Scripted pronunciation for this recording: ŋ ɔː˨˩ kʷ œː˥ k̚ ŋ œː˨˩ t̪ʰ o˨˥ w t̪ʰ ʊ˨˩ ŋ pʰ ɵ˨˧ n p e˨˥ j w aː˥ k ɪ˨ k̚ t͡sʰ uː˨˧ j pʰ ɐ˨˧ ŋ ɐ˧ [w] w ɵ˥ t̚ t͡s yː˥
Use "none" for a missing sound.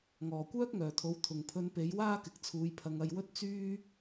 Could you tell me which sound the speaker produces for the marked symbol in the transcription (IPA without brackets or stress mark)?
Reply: j